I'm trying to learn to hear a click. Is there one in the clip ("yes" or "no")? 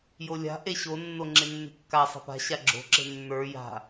yes